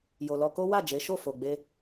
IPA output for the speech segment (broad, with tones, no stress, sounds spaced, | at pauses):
j o˨ l ɔ˧ k o˦ w a˦˨ d͡ʒ e˨˦ ʃ o˦˨ f o˨ ɡ͡b e˧